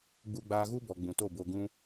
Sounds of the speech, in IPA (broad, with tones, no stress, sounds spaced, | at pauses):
ɡ͡b u˧ ɡ͡b aː˧ ɣ u˦ b ɔ˨ ɡ͡b ũ˨ t o˦˨ b o˧ ɡ ũ˦